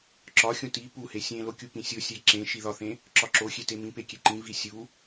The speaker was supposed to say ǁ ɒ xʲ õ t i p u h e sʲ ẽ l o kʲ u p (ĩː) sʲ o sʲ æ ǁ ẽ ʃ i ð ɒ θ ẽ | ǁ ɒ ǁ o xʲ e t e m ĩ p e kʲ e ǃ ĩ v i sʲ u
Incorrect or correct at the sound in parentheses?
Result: incorrect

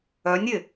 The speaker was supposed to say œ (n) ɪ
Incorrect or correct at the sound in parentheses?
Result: incorrect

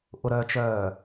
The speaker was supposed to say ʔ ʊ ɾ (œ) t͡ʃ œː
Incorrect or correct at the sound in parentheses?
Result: correct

